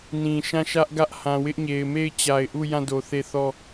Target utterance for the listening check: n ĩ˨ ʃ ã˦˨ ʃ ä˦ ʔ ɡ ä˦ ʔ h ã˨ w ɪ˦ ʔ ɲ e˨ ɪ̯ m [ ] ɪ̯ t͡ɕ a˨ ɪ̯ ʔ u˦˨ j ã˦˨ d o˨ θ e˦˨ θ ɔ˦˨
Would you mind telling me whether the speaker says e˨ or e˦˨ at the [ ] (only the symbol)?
e˦˨